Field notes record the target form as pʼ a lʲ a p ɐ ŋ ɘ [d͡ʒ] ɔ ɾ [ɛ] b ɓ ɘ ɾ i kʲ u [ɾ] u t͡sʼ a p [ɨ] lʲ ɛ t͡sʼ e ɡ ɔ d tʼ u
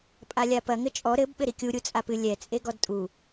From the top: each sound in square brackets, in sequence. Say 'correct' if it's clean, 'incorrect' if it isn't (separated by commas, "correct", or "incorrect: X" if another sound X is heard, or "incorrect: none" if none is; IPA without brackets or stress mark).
incorrect: t͡ʃʼ, incorrect: ɘ, incorrect: ɾʲ, correct